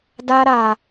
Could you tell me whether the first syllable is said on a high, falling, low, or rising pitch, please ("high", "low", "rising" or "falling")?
high